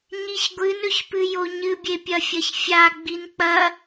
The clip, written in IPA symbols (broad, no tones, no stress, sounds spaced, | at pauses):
ɲ i ç ɡʷ ɨ n ɵ ç p ɨ j o ɲ ɨ bʲ e pʲ ɐ fʲ ɐ ç fʲ a ɡ͡b i n k͡p ɐ